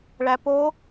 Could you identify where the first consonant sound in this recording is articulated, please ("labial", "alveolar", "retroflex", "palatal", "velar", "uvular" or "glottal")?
retroflex